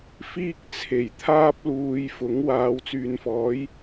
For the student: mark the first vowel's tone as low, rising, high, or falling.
high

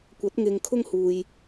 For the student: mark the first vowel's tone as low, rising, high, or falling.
rising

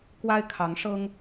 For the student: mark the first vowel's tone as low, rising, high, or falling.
high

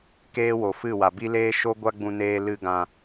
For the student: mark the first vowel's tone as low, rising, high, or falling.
high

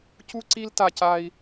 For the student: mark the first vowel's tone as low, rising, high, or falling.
high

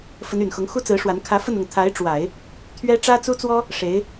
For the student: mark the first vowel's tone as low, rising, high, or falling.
rising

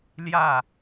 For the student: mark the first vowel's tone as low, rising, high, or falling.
falling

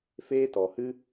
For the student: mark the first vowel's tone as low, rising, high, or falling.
high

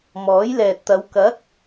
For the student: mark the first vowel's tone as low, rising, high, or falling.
rising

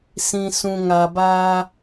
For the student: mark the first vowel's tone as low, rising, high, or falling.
low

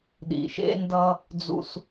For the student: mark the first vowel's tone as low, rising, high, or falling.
low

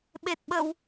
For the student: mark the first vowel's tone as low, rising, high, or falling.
low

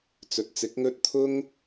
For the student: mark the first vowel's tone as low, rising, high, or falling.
low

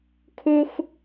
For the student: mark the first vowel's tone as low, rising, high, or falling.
high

